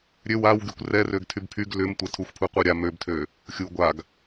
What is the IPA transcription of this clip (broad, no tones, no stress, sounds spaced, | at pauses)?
ɾʲ ø w a w ɡ y kʷ r ɛ r ø ɡ tʰ y b pʰ y ɡ l ʏ m tʷ ɛ tʰ u xʷ pʰ u qʷ a ɾʲ a m ø b tʰ ø | xʲ u ɡʷ a ɡ